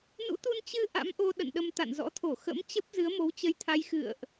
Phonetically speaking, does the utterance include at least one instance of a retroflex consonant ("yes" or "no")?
no